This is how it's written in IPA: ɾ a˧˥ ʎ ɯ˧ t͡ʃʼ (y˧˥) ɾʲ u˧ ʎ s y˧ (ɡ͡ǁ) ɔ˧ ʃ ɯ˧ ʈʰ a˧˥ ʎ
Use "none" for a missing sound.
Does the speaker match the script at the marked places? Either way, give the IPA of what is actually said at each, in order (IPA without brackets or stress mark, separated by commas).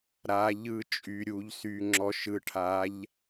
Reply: y˧, ŋ͡ǁ